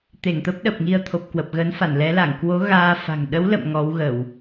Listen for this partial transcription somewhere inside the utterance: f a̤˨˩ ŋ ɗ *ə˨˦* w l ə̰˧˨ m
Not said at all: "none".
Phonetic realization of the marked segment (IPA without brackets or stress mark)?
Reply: ə˨˦